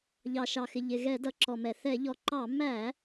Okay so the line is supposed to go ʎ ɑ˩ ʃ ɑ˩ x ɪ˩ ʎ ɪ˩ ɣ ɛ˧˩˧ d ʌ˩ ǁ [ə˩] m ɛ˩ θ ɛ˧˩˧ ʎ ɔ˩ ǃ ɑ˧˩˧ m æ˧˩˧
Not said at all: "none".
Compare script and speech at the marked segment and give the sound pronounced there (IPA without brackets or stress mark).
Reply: ɔ˩